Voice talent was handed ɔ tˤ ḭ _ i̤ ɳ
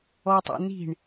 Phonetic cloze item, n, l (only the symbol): n